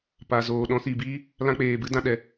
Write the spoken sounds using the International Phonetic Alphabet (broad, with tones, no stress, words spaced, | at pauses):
pa˨ zoː˨ ɗɔ̃˨˦si˨biː˦ | lã˦k͡peː˨bɨ˦dã˧ ɗɛ˨